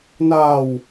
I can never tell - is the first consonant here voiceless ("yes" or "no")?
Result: no